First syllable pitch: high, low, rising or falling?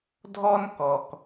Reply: high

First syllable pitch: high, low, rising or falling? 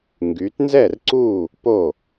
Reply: rising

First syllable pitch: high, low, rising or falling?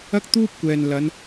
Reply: high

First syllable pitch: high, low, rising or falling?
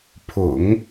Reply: low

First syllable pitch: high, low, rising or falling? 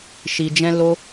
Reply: low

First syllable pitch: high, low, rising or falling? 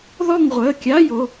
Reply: falling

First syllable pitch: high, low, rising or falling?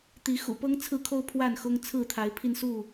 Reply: rising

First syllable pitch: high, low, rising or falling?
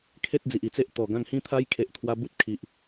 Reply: high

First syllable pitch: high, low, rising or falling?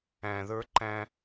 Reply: low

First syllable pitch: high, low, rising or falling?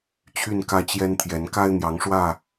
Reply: falling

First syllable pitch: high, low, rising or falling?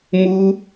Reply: high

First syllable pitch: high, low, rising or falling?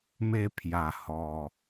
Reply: falling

